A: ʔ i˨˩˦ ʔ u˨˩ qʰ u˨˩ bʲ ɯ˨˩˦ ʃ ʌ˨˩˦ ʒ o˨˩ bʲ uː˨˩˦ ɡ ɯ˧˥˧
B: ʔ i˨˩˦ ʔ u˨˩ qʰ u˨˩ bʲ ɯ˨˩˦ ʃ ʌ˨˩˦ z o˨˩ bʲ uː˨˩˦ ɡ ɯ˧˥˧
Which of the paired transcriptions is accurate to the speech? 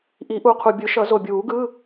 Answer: B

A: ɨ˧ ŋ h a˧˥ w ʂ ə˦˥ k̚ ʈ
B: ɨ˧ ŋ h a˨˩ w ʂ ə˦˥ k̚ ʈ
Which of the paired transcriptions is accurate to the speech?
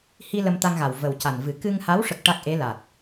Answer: A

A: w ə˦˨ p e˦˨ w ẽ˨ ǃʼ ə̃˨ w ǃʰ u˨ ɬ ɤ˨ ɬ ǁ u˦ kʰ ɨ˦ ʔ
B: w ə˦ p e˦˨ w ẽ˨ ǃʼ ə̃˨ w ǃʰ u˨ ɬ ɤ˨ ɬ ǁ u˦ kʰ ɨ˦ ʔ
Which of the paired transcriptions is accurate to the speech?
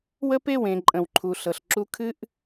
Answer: B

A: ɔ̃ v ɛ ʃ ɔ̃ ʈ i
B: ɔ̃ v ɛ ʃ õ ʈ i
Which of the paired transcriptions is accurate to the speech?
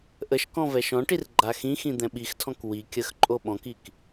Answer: A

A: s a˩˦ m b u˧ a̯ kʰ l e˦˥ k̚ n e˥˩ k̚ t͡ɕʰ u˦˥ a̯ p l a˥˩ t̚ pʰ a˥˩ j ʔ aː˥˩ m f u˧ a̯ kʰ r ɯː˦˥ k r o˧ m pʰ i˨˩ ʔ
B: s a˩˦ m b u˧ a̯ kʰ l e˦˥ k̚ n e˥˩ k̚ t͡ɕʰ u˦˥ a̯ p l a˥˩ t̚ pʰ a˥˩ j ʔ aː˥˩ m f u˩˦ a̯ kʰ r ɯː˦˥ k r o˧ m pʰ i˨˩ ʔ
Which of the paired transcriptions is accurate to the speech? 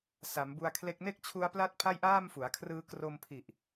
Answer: B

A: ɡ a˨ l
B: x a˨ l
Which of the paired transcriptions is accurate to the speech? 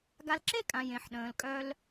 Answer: A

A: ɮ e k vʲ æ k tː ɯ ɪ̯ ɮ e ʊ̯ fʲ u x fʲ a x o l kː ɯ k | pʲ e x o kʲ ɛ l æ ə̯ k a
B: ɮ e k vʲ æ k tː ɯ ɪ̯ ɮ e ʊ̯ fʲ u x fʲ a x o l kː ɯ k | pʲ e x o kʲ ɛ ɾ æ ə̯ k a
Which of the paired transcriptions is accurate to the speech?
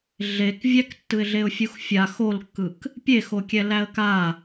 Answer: A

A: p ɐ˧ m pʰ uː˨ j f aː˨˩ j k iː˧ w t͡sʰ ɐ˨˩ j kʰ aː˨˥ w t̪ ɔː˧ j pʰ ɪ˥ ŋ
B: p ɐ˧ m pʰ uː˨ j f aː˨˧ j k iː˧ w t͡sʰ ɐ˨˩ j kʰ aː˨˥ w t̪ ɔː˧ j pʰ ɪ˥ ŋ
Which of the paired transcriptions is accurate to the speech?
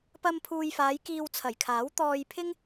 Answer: B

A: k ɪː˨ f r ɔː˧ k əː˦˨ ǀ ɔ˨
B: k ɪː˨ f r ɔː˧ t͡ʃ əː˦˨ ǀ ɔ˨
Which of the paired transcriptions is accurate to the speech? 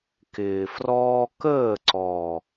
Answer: A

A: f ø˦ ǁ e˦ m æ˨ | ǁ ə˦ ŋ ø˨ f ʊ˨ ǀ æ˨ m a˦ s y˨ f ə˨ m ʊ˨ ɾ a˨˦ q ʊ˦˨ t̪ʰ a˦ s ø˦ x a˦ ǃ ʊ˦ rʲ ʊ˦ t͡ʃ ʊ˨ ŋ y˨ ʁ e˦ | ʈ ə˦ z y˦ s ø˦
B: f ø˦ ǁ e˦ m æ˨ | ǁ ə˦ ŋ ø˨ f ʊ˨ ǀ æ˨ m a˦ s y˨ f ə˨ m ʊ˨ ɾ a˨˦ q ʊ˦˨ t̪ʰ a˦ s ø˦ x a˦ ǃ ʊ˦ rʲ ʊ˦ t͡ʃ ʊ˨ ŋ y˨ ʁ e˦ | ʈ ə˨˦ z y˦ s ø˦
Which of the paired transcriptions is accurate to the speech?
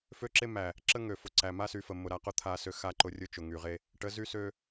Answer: B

